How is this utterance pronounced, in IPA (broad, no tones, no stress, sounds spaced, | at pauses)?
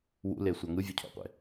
w ṵ l e sʷ a ŋ ɯ vʲ u cʰ o̰ qʷ ḛ